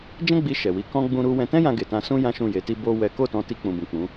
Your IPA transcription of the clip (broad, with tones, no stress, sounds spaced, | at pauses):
d͡ʒ ɛ̃˦ ɡ͡b i˧ ʃ ɛ˨ w i˨˦ k ɔ̃˦ ɡ͡b ũ˧ ɾ u˧ w ɛ̃˧ t ɛ̃˦ j ã˧ ɡ e˨ t ã˧ s ũ˦ j ã˦ ʃ ũ˦˨ j e˨˦ t i˦ b o˦ w ɛ˦ k o˦˨ t ɔ̃˧ t i˧ k͡p ũ˨ b ũ˨ k͡p ũ˨˦